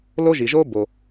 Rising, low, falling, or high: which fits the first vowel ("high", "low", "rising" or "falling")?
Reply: high